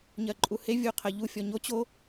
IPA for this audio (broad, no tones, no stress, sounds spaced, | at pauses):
ɲ ɜ ǃʼ u h e vʲ u qʰ ɜ ʎ u fʲ ɔ ɲ o t͡ɕ o